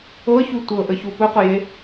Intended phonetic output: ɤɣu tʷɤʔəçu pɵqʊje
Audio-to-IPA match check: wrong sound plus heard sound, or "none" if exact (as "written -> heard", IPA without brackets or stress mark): ɣ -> ç